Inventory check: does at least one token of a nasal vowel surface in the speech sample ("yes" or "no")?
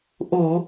no